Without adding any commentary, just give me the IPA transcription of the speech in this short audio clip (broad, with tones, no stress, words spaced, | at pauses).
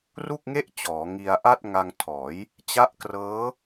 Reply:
ru˥˩k̚ŋe˥˩ʔt͡ɕɔː˩˦ ŋi˧a̯ʔa˥˩t̚ ŋa˧ŋtʰɔː˩˦j | t͡ɕa˦˥ʔkrɤː˦˥